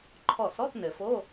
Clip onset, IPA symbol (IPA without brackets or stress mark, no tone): ǃʰ